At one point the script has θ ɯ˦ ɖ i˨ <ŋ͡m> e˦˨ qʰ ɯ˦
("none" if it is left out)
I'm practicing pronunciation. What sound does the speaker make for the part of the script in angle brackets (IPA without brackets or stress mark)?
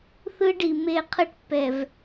m